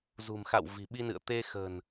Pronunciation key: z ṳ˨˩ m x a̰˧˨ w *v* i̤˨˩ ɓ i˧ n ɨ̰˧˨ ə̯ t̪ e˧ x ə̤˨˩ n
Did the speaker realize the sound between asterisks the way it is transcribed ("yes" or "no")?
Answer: yes